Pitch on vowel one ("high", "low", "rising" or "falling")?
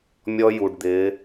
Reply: high